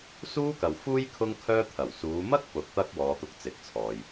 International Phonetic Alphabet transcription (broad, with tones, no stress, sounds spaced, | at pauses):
s uː˥ k ɐ˨ w f uː˥ j kʰ ʊ˥ ŋ kʰ œː˥ t̪ʰ ɐ˨˩ w s uː˨˧ m ɐ˥ k̚ p ʊ˨˥ k̚ t̪ ɐ˥ k̚ w ɔː˨˧ t̪ ʊ˧ k̚ t͡s ɪ˨ k̚ t͡sʰ ɔː˨ j